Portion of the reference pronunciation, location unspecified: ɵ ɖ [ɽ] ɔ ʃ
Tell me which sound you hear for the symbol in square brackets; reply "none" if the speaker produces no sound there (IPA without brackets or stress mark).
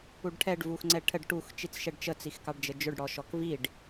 ɽ